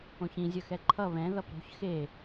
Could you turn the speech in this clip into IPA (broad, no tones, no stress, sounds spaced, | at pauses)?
õ ç ĩ zʲ ʌ x ɛ ǃʰ ʌ β ɛ̃ ð ʌ p ɾ o̤ ç x e